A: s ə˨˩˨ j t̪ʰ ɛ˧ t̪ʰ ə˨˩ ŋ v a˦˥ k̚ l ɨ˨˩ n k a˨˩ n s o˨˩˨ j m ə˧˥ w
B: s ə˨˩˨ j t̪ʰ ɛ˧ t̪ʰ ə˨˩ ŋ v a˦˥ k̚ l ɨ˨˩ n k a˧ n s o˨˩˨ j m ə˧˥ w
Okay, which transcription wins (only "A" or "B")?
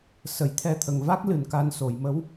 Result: B